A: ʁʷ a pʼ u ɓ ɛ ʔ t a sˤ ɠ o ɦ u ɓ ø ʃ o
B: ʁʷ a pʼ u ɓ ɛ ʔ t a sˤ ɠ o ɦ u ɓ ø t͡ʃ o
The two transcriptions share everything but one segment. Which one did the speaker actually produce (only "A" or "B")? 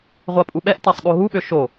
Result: A